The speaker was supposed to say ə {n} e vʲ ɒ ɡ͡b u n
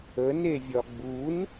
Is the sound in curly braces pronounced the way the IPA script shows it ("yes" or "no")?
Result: yes